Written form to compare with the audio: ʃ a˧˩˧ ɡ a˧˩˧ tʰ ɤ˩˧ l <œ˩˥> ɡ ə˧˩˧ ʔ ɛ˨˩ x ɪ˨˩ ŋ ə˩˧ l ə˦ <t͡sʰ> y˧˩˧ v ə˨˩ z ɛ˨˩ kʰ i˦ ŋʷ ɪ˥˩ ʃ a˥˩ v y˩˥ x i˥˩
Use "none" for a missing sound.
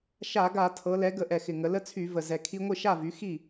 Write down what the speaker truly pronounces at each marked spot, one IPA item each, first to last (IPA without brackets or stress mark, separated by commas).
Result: ɛ˩˥, t͡sʰ